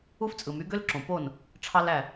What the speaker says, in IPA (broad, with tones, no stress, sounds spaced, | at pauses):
u˥ f t͡sʼ ɯ˩ m y˩˥ ɡ ø˥ l ǁ õ˩ p o˥˩ n | ʈ͡ʂʰ ɑ˥ l æ˥˩